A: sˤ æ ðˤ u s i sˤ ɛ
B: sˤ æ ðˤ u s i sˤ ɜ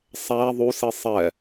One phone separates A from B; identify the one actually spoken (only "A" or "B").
A